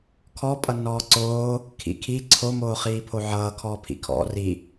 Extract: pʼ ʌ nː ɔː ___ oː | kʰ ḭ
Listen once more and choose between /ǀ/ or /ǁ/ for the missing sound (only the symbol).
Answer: ǀ